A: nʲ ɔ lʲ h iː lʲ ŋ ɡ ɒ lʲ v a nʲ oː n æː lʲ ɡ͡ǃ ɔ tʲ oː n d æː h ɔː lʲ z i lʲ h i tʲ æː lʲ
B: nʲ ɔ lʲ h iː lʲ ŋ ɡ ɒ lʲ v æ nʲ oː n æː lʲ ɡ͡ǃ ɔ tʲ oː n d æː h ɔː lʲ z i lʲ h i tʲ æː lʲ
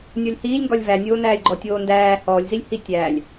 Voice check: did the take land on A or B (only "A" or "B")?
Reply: B